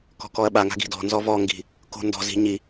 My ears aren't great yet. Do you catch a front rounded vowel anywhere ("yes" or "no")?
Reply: no